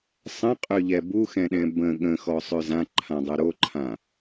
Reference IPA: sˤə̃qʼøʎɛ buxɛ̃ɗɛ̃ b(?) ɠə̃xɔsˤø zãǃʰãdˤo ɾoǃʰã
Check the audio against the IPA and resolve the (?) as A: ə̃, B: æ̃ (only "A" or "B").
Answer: A